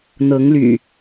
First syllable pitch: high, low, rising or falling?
rising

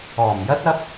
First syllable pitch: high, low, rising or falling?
low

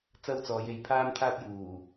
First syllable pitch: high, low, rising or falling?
high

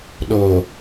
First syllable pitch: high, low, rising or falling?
low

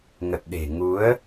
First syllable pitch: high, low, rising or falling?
low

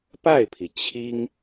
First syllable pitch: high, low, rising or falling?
falling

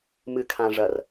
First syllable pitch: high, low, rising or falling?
low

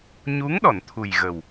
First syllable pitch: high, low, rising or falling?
rising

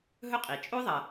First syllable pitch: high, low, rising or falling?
high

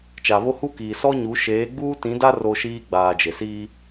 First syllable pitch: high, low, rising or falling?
low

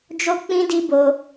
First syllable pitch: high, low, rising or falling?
high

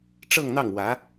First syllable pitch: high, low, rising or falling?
falling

